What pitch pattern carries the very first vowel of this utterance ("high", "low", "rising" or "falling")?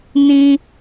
high